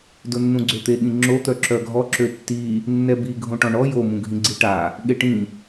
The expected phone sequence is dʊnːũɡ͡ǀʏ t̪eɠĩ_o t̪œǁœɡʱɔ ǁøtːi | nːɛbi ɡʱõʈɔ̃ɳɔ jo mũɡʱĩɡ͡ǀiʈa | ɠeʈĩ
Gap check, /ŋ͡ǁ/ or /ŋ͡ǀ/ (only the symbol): ŋ͡ǁ